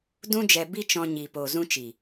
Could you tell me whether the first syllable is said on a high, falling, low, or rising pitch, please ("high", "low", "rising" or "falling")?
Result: high